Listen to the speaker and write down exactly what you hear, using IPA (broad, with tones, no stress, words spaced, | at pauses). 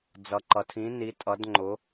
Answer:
d͡zʌ˧ǃʌ˧tʰĩ˧˥ni˧˥ tʼʌ˧˥dŋ͡ǃʊ˧˥